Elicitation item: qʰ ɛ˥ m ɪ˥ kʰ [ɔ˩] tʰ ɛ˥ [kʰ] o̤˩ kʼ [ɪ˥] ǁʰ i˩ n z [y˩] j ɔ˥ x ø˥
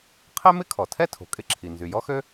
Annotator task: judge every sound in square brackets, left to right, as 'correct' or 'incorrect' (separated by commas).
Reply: correct, incorrect, correct, correct